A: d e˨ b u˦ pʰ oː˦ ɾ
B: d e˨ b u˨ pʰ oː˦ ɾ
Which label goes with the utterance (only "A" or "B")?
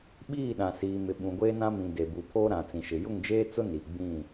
B